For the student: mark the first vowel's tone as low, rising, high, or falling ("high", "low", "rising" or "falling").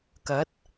rising